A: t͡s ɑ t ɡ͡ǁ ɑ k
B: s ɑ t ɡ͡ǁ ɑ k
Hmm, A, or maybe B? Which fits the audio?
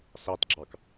B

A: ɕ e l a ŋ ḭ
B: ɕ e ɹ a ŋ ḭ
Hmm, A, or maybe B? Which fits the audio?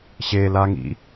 A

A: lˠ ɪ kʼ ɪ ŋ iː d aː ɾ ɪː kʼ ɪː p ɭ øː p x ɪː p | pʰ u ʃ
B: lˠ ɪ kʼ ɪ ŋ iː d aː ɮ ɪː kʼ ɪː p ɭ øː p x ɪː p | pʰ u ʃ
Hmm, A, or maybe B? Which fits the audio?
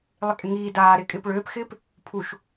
A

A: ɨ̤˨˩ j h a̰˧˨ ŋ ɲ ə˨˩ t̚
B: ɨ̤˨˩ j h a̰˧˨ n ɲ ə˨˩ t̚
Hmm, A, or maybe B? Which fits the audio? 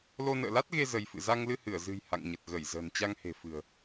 A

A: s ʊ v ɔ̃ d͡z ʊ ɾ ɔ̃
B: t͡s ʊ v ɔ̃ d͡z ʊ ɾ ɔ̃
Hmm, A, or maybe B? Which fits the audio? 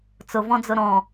B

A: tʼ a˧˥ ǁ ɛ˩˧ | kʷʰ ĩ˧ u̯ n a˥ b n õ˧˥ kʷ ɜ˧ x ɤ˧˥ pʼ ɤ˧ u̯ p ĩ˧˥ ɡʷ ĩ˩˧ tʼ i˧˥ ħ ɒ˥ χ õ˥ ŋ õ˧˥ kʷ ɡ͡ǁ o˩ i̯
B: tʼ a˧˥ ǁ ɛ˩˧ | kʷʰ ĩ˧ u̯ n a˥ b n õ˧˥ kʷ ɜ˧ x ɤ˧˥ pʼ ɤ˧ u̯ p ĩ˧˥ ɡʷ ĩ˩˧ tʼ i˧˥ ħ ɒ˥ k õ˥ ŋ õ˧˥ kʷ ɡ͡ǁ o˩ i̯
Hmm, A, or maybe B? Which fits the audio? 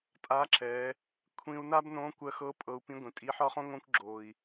A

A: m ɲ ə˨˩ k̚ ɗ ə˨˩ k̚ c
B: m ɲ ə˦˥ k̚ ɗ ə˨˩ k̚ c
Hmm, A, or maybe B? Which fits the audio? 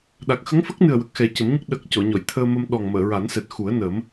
B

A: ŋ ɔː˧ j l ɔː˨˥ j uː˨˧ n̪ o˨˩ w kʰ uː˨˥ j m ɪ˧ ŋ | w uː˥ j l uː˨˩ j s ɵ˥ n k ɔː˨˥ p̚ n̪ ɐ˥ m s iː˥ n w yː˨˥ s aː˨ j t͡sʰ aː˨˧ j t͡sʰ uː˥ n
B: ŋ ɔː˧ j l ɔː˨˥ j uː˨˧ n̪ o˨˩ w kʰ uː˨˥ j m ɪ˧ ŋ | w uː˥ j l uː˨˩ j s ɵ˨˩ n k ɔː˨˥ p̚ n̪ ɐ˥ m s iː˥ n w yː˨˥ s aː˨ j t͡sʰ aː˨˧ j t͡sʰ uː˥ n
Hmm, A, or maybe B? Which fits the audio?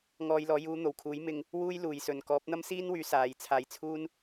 B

